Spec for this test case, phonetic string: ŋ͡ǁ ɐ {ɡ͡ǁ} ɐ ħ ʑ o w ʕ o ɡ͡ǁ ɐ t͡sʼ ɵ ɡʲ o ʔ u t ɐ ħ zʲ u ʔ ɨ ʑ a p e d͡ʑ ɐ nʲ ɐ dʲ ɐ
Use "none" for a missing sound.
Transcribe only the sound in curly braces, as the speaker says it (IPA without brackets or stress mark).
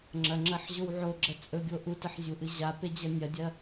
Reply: ŋ͡ǁ